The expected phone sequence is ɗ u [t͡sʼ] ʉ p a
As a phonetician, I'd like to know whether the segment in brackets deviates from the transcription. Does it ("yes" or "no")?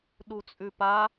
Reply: no